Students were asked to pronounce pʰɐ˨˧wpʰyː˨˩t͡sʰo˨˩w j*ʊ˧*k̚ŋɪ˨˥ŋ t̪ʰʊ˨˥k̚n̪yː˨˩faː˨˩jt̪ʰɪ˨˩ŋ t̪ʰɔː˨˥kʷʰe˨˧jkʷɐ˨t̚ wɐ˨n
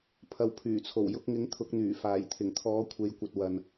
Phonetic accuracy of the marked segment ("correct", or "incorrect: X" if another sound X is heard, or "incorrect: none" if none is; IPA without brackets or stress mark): correct